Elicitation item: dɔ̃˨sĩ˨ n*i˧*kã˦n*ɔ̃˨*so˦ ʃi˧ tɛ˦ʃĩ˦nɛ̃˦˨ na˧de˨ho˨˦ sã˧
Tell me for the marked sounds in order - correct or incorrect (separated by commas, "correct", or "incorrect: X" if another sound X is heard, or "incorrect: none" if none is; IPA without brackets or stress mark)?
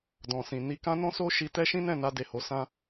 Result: correct, incorrect: ɔ̃˦